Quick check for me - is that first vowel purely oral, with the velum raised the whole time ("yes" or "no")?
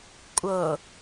yes